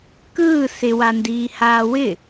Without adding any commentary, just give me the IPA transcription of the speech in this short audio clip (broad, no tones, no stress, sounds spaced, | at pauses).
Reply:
k ɯː s ɪ w a n d iː h aː w ɪ